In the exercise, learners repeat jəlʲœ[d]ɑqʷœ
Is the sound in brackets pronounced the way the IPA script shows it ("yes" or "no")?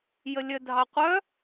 no